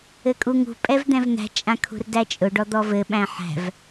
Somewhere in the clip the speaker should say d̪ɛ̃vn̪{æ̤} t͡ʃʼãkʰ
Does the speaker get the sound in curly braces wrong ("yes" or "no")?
no